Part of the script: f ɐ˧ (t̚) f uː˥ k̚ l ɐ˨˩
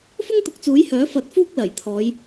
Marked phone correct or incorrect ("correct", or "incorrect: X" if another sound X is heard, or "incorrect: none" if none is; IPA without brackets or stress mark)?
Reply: correct